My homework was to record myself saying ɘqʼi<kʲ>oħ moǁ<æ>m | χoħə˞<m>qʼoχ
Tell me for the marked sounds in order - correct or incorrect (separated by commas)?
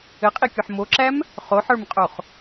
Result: correct, correct, correct